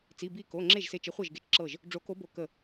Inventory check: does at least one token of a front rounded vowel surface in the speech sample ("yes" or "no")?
no